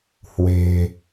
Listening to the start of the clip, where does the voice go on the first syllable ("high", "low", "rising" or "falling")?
low